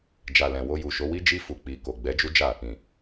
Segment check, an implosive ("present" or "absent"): absent